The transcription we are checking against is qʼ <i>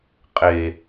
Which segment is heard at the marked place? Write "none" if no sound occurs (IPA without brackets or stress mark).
e